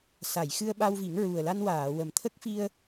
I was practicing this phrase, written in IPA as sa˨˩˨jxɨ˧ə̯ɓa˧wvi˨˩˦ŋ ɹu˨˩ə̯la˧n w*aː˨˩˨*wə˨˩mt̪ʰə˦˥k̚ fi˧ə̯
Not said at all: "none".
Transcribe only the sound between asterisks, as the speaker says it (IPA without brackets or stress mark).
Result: aː˨˩˨